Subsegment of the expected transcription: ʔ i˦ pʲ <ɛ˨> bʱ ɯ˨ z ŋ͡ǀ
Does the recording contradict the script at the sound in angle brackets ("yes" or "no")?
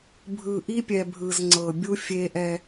no